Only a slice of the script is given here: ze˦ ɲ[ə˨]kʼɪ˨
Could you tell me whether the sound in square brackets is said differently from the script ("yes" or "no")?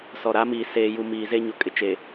yes